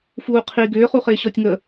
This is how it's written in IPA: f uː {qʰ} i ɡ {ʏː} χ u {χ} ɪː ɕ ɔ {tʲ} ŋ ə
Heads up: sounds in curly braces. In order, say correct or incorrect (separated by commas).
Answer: correct, correct, correct, correct